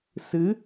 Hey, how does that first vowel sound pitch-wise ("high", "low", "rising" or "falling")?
rising